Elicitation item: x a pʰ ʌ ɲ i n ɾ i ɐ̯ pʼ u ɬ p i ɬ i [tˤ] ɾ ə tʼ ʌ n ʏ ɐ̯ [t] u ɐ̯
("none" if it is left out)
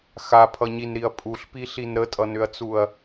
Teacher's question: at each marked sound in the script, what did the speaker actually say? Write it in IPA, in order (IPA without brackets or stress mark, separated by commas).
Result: n, t͡s